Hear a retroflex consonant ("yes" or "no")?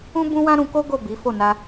no